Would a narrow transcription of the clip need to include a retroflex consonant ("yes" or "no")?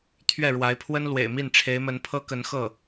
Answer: yes